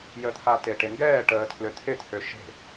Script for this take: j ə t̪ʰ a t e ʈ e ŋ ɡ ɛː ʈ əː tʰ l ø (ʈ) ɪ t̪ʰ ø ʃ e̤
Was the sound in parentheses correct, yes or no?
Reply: no